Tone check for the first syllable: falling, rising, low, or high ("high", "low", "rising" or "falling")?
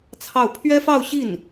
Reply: falling